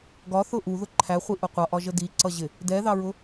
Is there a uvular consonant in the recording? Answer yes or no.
yes